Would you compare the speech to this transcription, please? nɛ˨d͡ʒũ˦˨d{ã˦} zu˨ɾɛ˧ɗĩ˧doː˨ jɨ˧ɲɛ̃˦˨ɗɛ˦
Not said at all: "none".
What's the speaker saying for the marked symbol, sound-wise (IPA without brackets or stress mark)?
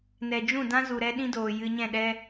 ã˦